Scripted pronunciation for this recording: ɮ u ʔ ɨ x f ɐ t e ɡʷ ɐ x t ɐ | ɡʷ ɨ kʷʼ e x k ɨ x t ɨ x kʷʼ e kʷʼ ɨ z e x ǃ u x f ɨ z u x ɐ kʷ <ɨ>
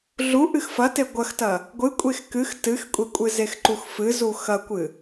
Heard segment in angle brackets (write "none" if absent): ɨ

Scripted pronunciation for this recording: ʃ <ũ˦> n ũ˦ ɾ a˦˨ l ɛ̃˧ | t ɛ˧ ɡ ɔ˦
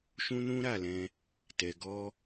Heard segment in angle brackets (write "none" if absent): ũ˦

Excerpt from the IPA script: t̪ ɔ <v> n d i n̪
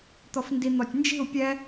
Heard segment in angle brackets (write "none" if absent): f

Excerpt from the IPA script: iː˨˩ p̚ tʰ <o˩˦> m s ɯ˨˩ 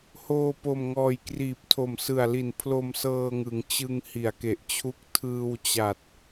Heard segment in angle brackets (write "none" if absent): o˨˩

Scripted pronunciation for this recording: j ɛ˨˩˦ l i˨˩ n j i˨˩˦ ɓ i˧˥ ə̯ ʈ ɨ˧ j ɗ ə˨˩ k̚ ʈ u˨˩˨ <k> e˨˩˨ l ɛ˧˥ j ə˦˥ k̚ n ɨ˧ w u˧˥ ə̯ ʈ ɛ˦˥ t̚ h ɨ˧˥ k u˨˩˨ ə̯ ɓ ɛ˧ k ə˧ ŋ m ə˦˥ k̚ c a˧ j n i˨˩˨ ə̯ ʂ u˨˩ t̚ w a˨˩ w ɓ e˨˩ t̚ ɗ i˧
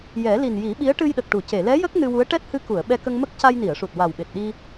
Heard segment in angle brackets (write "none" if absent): c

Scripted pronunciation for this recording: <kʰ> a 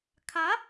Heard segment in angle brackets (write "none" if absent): kʰ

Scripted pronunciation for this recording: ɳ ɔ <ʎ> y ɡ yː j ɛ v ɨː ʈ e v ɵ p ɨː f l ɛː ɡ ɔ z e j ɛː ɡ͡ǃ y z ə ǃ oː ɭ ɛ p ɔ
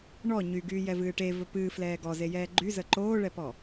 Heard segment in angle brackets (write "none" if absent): ɲ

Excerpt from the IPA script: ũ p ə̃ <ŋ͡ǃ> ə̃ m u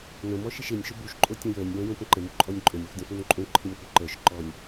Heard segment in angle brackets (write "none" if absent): ǃ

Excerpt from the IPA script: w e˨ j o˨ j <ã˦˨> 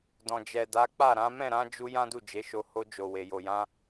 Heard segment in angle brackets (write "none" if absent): ã˧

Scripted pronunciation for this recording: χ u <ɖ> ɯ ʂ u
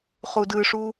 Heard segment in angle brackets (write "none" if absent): d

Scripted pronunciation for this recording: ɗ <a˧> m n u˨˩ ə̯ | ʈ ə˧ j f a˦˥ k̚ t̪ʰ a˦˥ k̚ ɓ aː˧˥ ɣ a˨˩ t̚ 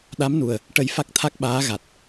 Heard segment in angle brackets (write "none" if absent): a˧˥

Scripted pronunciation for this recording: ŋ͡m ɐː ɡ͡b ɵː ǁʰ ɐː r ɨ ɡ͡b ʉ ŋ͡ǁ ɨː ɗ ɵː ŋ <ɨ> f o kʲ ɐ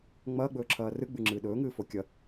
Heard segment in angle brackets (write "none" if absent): ɨː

